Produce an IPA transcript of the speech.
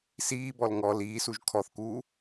s iː b ɔ l ŋ ɔ l iː s u ʒ kʰ ɔ θ k uː

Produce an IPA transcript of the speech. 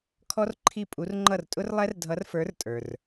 kʰ ɔ˥ r ǃʰ i˥˨ pʼ u˧˥ r ŋ͡ǃ ʌ˥˨ r tʼ ʊ˥ r lˠ ɛ˥ r dʱ ʌ˧˥ r f ə˞˧˥ r tʼ ə˞˨ r

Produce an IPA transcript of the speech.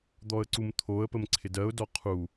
d̪ ɔ ə̯ ǀ u m t̪ʰ o ə̯ p ə m ǀʰ ɪ d ɜ ʊ̯ d ɔ qʰ u

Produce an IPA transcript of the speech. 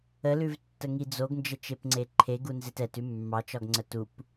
ə l ʉ v tː ə ŋ i d͡z o ɡ n d͡ʒ ə t͡ʃ e p ŋ͡ǀ e ǃʰ e ɡ u n z e t ɛ t ʉ mː ɑ t͡ʃ ɒ ɡ ŋ͡ǀ ə t u p

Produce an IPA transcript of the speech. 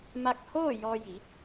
m a˧ k̚ h oː˥˨ j ɔː˧ j i˩˧

